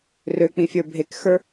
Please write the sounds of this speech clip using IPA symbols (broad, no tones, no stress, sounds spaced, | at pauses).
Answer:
r ø k͡p ĩ fʲ ə˞ bʱ e k x ə˞